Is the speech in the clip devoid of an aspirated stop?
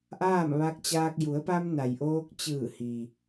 yes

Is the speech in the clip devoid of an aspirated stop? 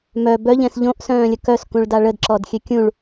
yes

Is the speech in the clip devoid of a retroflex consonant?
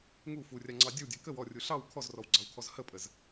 yes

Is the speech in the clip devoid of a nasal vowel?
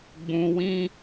no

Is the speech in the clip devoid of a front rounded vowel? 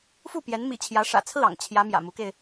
yes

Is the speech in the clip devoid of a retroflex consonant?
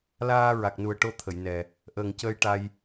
no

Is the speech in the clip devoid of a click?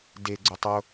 no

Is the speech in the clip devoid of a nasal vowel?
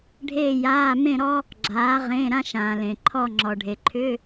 no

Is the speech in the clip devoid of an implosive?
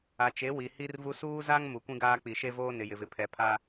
yes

